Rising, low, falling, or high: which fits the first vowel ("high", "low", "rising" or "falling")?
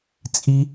high